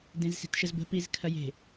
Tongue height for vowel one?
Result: mid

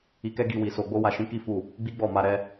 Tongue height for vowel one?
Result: high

